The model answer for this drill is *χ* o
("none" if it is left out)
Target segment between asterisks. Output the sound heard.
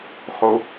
χ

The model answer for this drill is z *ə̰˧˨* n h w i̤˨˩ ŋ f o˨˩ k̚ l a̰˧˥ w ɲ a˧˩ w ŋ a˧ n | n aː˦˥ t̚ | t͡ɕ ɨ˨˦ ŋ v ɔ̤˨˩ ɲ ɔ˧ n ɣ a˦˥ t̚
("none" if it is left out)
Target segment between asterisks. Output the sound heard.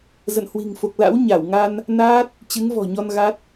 ə̰˧˨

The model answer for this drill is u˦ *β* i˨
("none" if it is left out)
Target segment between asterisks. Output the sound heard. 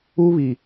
β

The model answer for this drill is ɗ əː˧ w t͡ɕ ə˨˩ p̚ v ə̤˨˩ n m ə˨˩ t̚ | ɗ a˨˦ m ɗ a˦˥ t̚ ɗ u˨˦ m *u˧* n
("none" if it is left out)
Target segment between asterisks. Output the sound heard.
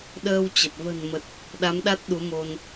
o˧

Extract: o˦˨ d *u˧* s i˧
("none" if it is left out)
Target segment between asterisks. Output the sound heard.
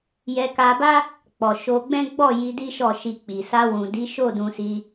ũ˧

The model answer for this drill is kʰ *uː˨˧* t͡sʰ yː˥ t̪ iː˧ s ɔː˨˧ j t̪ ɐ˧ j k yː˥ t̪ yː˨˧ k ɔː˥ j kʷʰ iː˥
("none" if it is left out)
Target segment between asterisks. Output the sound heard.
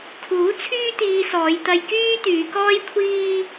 uː˨˥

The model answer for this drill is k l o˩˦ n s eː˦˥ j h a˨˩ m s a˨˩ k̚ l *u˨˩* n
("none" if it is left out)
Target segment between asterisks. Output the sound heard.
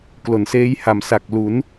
u˩˦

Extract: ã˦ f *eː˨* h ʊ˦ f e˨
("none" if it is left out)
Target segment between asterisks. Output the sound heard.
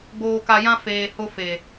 eː˨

